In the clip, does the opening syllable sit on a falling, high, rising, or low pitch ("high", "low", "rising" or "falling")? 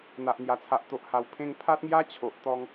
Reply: low